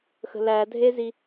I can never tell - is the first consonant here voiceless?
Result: yes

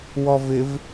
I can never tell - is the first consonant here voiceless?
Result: no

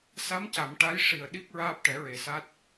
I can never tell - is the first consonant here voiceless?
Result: yes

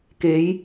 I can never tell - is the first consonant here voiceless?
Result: yes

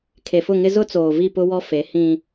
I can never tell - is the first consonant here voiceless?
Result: yes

